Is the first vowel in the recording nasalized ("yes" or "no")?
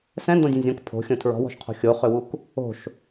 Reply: yes